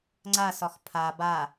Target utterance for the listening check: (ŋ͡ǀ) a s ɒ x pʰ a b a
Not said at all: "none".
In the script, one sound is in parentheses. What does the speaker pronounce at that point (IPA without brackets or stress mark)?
ŋ͡ǀ